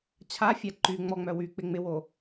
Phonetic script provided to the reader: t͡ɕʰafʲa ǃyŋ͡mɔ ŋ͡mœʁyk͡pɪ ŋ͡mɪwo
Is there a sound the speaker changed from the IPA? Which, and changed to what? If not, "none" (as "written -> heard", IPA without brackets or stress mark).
ʁ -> w